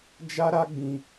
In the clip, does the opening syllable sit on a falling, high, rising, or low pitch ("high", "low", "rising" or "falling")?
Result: high